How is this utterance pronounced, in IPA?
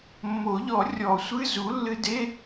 mː o˨˩˦ ʎ ɔ˨˩˦ rʲ ɔ˨˩˦ sʷ ɨ˧˥˧ z u˩˥ lː ɨ˧ d e˧˥˧

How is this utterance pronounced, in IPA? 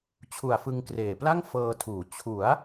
t͡ɕʰ u˨˩ a̯ f ɯ˧ ŋ k r eː˨˩ p l a˥˩ ŋ f ɤː˧ tʰ uː˩˦ t͡ɕʰ u˩˦ a̯

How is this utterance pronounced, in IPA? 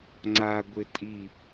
ŋ͡ǀ a ɡʷ ɪ tʼ i

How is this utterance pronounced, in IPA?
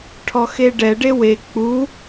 ʈʰ ɔ x e ɖ ɛ ɖ e w e k͡p u

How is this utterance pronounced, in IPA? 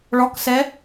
ɭ ɔ k s ɛ

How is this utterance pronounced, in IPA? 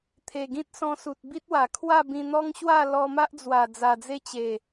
t̪ʰ e˨˩ ɡ ĩ˦ t̚ s ɔ̃˧ s u˨ t̚ b i˦ t̚ w a˨˩ kʰ w a˥˧ b ĩ˧ n̪ ɔ˦ ŋ ɕ w a˥˧ l ɔ˧ m a˦ ʔ d͡z w a˨˩ d͡z a˨˩ d͡z e˦ t͡ɕ e˨˩

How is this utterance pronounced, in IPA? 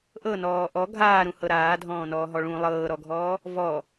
ʔ ɤ n ɔː ʔ ɔ ɡʱ aː ɾ ũ h ɤ ɾ aː dʱ ɔ̃ː n ɔː ɦ ɔ ɭ ũ lˠ ɤː ɾ ɔ ɡʱ ɔː | v ɔ

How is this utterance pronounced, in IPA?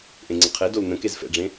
ʔ ẽ ŋ͡ǀ ə qʰ e d o l n ə̃ k e z f ɛ̰ ɖ͡ʐ ẽ

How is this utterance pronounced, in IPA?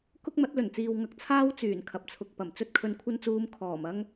k ʊ˥ k̚ m ɐ˨˥ t̚ l ɵ˨˩ n t͡s iː˨ w ŋ ɐ˧ k̚ t͡sʰ aː˥ w t͡s yː˨˩ n kʰ ɐ˨ p̚ t͡sʰ ʊ˨ k̚ p ɐ˨˩ m t͡s ɵ˧ t̚ kʰ ɵ˨ n kʷʰ ɐ˧ n t͡s uː˨˧ m kʰ ɔː˨˩ m ɐ˥ ŋ

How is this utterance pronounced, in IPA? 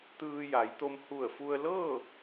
t̪ ɯː˧ j a˩˧ j t̪ o˧ m h u˧˩ ə̯ f u˧ ə̯ l ɤː˥˨

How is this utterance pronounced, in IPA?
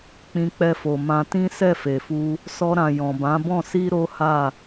k͡p ĩ˧ k͡p ɛ˧ f o˨ m ã˧ t ĩ˦ s ɛ˦˨ f e˨ f u˧ | s ɔ˧ ɾ ã˨ j ɔ̃˨ b ã˨˦ b ɔ̃˦˨ s i˧ ɾ o˦ h a˦˨

